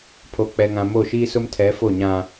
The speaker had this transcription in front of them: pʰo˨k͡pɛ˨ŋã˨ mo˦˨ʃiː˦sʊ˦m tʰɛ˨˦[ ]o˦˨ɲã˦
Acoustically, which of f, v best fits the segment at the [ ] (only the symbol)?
f